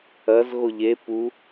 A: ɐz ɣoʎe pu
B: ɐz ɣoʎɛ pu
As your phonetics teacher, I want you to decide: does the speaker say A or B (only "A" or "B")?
A